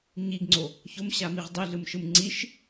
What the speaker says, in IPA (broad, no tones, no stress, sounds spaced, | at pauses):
ɲ i ɡ ŋ͡ǀ o | ç o m ɕ a m i ʁ dˤ i ɮ ɯ m ʃ ɯ m ŋ͡ǀ i ʃ